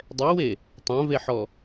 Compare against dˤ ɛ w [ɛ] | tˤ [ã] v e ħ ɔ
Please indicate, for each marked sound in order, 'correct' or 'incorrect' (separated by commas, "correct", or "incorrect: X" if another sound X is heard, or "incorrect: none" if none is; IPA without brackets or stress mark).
incorrect: e, correct